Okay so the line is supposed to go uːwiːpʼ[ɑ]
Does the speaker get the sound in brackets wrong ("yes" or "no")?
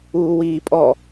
yes